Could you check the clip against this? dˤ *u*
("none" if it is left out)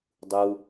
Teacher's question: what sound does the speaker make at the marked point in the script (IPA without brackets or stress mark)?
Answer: u